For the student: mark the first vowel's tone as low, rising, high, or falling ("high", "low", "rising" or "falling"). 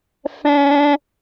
high